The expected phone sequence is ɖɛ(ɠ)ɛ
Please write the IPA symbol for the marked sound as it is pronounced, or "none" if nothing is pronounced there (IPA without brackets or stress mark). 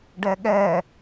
ɠ